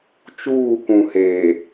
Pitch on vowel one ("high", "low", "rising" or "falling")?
falling